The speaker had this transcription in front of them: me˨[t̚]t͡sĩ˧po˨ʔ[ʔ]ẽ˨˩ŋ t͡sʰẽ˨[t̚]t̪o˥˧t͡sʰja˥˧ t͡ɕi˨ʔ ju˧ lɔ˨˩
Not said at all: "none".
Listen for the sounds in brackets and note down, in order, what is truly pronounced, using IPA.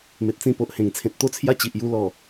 t̚, h, t̚

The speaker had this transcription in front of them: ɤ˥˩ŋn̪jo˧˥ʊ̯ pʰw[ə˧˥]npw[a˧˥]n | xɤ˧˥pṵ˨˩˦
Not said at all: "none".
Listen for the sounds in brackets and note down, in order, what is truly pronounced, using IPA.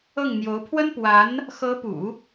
ə˥, a˧˥

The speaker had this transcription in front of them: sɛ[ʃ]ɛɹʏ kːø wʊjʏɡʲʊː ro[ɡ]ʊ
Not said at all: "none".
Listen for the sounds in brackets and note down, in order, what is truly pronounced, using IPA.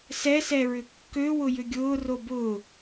s, b

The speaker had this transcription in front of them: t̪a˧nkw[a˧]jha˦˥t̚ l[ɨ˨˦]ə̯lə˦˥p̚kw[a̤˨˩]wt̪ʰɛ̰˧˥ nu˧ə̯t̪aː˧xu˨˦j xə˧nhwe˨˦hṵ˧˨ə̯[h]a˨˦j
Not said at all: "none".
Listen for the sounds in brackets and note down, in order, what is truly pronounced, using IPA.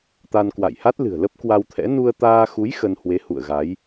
a̰˧˨, ɨ̤˨˩, a˧, ɣ

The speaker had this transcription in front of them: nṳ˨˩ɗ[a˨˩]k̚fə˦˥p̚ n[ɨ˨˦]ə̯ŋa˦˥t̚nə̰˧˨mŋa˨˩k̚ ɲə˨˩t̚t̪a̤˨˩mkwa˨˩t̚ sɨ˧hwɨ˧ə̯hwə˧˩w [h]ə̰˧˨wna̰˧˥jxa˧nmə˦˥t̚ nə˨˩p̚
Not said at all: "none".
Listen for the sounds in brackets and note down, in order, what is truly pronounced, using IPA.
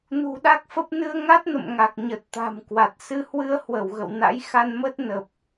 a˦˥, ɨ˧, ɣ

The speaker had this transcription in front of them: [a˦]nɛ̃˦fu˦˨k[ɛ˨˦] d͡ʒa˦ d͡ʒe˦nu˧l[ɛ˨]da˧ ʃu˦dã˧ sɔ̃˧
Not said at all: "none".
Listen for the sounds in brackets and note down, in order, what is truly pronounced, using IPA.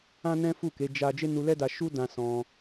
ã˦, e˨˦, ɛ˦

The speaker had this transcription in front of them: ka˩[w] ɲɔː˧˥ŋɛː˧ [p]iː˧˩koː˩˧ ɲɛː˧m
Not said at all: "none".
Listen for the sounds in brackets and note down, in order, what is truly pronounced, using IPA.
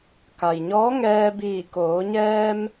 j, b

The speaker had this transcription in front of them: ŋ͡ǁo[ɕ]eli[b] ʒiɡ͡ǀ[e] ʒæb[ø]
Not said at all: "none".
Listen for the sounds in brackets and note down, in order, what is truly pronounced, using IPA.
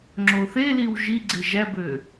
θ, w, e, ø

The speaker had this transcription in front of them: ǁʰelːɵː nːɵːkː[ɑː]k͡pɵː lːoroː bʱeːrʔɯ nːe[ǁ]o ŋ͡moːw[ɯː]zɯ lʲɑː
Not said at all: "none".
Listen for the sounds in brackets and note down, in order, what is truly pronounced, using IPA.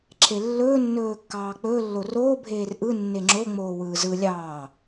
ɑː, ŋ͡ǁ, ɯː

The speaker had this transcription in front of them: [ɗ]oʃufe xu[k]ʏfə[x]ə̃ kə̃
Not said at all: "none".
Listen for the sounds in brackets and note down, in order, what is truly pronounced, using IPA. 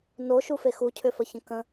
n, cʰ, ç

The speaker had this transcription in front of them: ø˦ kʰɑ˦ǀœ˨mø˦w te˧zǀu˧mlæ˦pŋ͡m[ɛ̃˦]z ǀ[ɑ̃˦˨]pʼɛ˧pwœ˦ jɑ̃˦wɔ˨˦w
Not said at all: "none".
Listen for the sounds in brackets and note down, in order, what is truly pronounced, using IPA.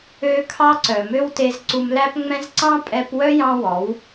ɛ̃˦, ɑ̃˦

